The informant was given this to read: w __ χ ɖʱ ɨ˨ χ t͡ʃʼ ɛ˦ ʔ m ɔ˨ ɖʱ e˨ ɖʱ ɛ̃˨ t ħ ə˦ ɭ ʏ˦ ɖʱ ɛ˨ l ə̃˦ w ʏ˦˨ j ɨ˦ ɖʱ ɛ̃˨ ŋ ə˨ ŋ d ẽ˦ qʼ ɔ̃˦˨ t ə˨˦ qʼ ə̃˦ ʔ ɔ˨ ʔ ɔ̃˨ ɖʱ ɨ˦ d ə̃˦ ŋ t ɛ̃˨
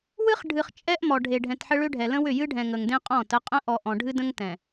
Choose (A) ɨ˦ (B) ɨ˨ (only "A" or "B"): A